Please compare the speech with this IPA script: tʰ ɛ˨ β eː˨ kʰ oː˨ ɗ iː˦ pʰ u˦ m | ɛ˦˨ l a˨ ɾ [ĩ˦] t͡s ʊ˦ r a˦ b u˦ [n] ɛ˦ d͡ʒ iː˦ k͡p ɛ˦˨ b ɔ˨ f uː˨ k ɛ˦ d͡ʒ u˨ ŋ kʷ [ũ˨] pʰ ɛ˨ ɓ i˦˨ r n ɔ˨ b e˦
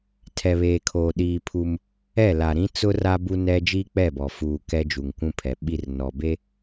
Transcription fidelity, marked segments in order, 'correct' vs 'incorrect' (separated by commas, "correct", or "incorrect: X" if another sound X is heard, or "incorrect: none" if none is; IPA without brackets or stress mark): correct, correct, incorrect: ũ˦